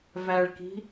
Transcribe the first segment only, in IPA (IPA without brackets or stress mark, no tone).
v